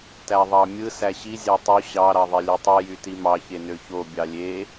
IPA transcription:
t æ ðˤ ɑ mʲ ɯ s æ ɕ i zʲ ɑ tˤ u ɕ ɑ ɾ ɑ ðˤ e lʲ ø tˤ i j y t i m ɑ ç e n ø ç o bʲ ɑ lʲ e

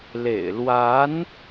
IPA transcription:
l ḛ˨˩ ɪ̯ l w a˧˥ n

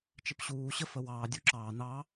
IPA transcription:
t͡ʃ ɪ p ɕ uː ɕ ə f ə w ɑː dʲ u ǁ ɑː n ɑ

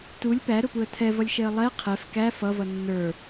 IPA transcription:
t u lʲ p æ ɾ ʊ p u ə̯ tʰ ɛ v ʌ lʲ ʃ ɛ ə̯ lˠ ɛ qʰ ɛ f k æ f ʌ v ʌ nː ə˞

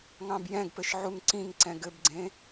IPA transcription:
ŋ ɑ̃ b j ɛ̃ ɡ p ɘ ʃ ʕ u ŋ ǀ ĩ ŋ ǀ ɛ̃ ɡ ɘ b ɡ͡ǀ ẽ

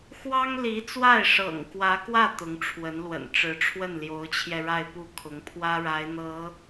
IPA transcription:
x w ɑ˥ ŋ l i˧˥ t͡s w a˥˩ ɪ̯ ʂ ɤ̰˨˩ ŋ k w ä˧˥ k w ä˥˩ t̪ ʊ˧˥ ŋ ʈ͡ʂʰ w ə˧˥ n l w ə̰˨˩ n ʈ͡ʂ ɻ̩˧˥ ʈ͡ʂʰ w ə˥˩ n l j o˧˥ ʊ̯ t͡ɕʰ j ɛ˧ ɻ a˥˧ ɪ̯ p u˥˩ kʰ ʊ˧˥ ŋ pʰ w ä˥ ɻ a˧˥ ɪ̯ n̪ ɤ˧˥

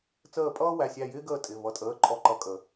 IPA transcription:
t͡s əː˧˩ pʼ ʌː˦ w æ˩˧˩ sʲ æ˧˩ j ɪː˦ ɡ əː˧˩ tʼ ɪ˩˧˩ v ʌ˨˩˦ tʼ əː˩˧˩ ǃʼ ɔ˧˩ ǃ ʌ˧˩ kʼ ə˨˩˦

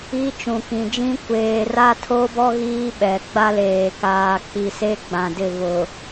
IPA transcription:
i˦ t͡ʃ ũ˨ k ĩ˨ d͡ʒ ĩ˦ kʷ eː˨ r a˦ tʰ o˦ b ɔ˦ ɣ iː˦ ɓ ɛ˨ ɡ͡b a˦ l eː˨ k aː˨ k͡p i˨ s e˦ ɡ͡b ã˨ d ɪ˦˨ v ʊ˨

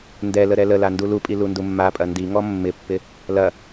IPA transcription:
n d ɛ l ə ɾ ɛ l ə l a n d u l u pʼ i l u n d u mː a pʼ ɐ n d i ŋ ɔ mː ɪ pː ɪ | l ɐ

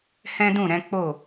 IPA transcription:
h ɛ̃˦ d ũ˦˨ ɾ ɛ̃˨˦ k͡p o˦˨

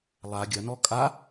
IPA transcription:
lˠ a ɡʲ ɐ n ɔ kʼ a

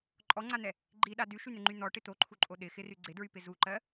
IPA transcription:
ǃʼ ɔ ŋ͡ǀ a n̪ ɛ | ɡ͡ǃ i ɗ a d y ʃ y n̪ ɪ ŋ͡ǃ y n̪ ɔ ʈ ɪ t̪ o ǃʰ u ǃʼ o ɗ ɪ x ɪ r y ɡ͡ǀ ɪ d ɹ y p ɪ z u ǃ ɜ

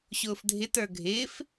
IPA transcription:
ɕ ʊː f dʱ ɪ t ə˞ ɡʱ ɪː f

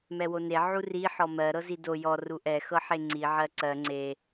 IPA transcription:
m ɛ w o n e ʕ u r i ħ ɔ m ɜ ɾ ɤ z i d o j ɔ r u ʔ ɛ x ɤ ħ e ŋ͡ǀ i ʕ ɜ ǀ ɜ ŋ͡ǀ e

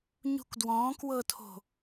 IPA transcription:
ɲ ṳ k d w ɔ̃ː k w ɤ tʰ o̤

